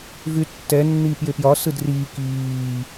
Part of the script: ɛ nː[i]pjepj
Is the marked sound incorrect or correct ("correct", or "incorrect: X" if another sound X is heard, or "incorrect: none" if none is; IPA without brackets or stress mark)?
incorrect: iː